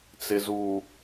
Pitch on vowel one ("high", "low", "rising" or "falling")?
low